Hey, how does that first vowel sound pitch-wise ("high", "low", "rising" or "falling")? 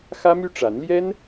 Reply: high